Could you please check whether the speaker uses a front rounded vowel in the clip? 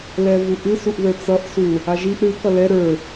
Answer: no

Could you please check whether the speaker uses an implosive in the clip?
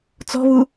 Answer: no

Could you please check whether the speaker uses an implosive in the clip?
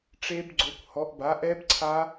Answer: no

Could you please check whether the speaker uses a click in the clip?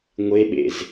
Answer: no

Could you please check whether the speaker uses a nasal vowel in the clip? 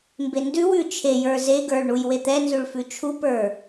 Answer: no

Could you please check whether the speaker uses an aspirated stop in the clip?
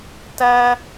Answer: no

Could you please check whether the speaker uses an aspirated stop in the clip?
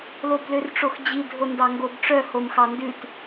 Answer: no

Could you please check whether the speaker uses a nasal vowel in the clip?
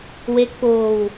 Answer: no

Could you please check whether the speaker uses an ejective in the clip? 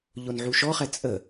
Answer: yes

